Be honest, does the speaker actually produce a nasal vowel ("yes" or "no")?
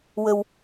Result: no